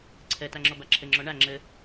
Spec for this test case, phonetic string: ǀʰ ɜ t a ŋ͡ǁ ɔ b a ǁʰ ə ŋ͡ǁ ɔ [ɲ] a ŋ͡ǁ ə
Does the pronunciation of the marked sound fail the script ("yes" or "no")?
yes